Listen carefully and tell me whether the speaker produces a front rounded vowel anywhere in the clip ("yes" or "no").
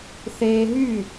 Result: yes